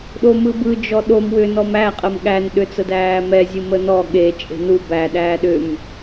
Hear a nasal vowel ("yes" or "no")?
no